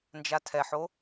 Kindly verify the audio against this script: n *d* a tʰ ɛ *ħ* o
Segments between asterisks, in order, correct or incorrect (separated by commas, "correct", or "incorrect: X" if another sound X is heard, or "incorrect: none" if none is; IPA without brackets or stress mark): incorrect: d͡ʒ, correct